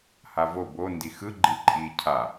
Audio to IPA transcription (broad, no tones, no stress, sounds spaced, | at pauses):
h a v o b o n d i x ɯ ɡ͡ǃ i ǃʼ i cʰ a